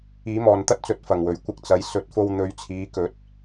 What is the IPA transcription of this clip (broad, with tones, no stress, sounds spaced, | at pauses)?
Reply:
iː˨˥ m ɔː˨ n t̪ ɐ˥ t̚ t͡s ɵ˨˥ t̚ f ɐ˨˩ ŋ w ɵ˨˩ ɥ kʷ ɪ˧ k̚ t͡s ɐ˨˧ j s ɵ˨˥ t̚ f o˧ w n̪ ɵ˨˥ ɥ t͡sʰ iː˨˧ k ɵ˨˥ t̚